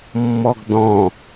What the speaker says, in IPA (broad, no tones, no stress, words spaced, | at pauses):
mːɔɡdɔ̃